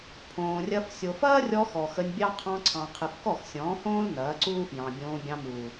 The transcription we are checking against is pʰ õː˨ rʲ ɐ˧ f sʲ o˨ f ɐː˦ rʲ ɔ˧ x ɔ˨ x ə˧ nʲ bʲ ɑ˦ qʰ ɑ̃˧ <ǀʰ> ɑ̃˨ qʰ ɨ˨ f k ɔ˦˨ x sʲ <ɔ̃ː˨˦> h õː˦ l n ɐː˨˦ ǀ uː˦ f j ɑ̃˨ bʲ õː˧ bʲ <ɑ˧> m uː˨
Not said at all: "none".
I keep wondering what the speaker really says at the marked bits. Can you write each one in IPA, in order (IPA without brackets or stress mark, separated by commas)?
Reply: ǀʰ, ɔ̃ː˨˦, ɑ̃˧